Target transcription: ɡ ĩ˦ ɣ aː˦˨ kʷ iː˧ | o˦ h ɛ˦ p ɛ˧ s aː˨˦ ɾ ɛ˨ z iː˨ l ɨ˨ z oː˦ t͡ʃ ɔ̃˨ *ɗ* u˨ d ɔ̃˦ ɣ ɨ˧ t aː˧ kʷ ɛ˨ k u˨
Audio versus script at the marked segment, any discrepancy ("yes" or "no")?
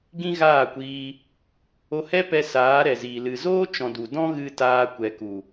yes